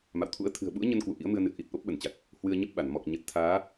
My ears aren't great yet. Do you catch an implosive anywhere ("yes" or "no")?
yes